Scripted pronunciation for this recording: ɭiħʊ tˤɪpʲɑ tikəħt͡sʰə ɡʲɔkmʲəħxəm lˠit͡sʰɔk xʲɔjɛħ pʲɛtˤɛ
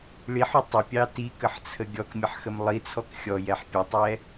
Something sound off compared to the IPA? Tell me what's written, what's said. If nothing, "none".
none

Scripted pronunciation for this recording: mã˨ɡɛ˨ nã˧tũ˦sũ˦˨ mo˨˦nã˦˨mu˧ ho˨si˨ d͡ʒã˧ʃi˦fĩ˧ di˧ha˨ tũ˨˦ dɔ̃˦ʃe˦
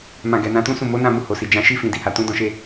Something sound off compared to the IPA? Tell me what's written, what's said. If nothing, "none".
none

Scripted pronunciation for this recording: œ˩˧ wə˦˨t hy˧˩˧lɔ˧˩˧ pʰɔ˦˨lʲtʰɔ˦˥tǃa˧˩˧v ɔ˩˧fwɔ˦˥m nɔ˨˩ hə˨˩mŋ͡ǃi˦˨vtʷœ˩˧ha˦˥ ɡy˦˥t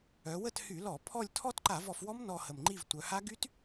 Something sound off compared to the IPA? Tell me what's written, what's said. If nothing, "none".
none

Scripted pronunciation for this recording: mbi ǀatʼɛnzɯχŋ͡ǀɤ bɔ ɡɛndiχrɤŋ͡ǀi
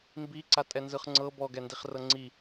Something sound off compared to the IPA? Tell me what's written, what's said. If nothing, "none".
none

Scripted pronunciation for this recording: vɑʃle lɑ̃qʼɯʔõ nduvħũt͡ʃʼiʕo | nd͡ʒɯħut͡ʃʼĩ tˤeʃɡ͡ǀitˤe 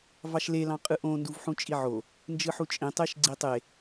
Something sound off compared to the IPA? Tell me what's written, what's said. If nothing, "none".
none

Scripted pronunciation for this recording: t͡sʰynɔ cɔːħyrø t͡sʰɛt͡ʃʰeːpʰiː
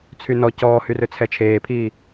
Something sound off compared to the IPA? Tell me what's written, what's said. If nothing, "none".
ħ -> h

